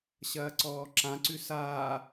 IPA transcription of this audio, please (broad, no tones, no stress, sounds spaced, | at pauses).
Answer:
ɕ ɐː ǀ ɔː ǁ ã ǀ ʉ s aː